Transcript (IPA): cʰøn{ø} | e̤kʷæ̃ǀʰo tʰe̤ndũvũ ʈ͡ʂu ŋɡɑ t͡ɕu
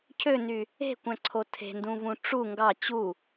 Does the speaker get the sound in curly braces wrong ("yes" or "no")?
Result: yes